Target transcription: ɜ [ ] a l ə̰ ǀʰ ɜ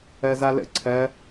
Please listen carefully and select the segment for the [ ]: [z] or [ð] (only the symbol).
z